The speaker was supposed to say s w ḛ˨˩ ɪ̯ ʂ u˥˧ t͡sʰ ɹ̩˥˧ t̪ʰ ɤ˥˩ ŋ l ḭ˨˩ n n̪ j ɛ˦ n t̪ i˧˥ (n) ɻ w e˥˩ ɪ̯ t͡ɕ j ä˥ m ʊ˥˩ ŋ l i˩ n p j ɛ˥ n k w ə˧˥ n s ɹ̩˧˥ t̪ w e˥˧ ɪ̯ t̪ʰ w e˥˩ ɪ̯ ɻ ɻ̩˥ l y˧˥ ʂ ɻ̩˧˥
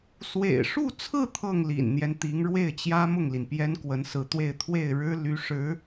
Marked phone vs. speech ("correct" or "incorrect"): incorrect